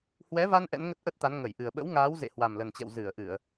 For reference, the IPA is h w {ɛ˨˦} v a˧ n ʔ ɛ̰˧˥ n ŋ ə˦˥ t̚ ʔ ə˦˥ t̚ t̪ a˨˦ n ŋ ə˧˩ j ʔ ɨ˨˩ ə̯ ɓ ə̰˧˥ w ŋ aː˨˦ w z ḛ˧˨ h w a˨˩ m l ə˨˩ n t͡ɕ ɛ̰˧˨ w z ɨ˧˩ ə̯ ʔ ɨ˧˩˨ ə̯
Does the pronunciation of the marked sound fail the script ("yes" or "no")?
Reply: no